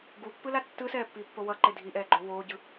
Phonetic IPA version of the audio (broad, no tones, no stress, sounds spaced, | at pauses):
ɡ u pː ɯ l a tː ɯ s ɛː pː iː pː o w ʌ ǃ e dʱ i ʔ ɛː ɡ͡ǃ o w oː ɟ ɯ